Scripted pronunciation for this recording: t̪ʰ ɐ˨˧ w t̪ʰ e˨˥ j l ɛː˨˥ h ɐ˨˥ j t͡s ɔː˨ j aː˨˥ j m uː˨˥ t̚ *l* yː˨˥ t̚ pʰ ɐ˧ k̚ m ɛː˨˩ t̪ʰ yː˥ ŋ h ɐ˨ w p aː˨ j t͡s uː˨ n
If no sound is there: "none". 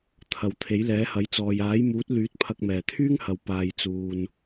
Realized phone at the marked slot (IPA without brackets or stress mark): l